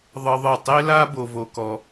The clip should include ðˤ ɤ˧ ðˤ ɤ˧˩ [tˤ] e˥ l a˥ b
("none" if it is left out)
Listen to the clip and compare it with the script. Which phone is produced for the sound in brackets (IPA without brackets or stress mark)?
tˤ